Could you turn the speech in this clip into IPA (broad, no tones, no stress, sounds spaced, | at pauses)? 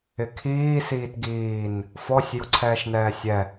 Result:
ɪ kʰ iː s iː t ɡ iː n | f ɔ sʲ j ʊ ǀʰ ɛː ʃ n ɛː sʲ ɛ